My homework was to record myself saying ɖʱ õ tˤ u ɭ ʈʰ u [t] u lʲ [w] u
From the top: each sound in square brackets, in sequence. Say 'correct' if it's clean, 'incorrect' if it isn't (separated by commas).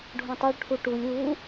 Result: incorrect, correct